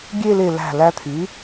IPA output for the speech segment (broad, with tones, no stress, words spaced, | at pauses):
ɡʲe˥˧le˧˩ læ̤˧˩læ˧ t̪ʰy˩˥